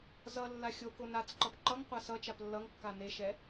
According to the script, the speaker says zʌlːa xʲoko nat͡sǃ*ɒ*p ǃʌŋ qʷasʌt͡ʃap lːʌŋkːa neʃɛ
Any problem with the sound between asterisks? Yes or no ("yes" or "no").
yes